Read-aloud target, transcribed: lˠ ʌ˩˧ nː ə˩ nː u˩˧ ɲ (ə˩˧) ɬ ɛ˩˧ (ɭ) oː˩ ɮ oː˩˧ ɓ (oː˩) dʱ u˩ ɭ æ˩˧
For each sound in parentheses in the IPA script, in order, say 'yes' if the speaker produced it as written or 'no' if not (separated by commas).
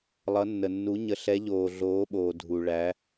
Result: yes, no, yes